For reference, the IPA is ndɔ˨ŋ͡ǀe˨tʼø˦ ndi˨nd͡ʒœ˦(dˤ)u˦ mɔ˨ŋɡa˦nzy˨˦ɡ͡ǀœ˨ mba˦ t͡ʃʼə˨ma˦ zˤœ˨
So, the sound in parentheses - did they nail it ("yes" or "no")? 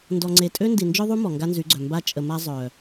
no